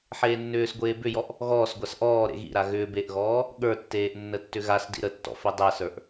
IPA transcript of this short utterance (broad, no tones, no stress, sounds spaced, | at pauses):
ħ eː nː ʏː s ɡʷ eː b ʏ j ɔ ʔ | ɣ ɔː s ɡʷ a s ʔ ɔː ɾ ḛ ɣ ḭ ɾ a ɣ ʏː b e ʔ ɣ ɔː | ɠ ə˞ tː eː ʔ nː ə tː ʏ ɣ a s d ḭ ɾ ə tː ɔ̰ f i dˤ ɛ s ə˞ ʔ